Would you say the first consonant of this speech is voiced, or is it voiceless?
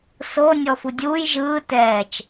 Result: voiceless